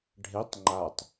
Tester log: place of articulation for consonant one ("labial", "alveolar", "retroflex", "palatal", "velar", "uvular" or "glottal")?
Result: retroflex